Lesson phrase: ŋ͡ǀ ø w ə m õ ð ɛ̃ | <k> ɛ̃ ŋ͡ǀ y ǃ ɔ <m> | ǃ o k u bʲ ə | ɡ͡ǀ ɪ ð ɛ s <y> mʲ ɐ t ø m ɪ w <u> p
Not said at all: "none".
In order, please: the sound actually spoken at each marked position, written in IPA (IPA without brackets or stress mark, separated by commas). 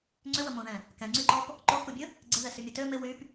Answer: k, p, y, y